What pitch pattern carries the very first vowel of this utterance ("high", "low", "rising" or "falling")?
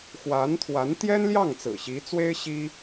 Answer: rising